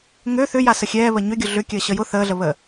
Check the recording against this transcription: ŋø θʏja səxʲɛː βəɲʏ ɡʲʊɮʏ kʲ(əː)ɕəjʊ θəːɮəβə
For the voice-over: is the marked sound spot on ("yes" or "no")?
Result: yes